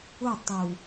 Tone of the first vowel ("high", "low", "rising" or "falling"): falling